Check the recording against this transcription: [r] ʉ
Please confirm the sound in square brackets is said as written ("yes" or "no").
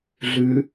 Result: no